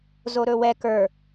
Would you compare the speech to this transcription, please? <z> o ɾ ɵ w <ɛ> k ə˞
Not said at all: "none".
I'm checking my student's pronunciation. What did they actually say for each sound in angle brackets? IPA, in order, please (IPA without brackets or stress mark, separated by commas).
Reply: z, ɛ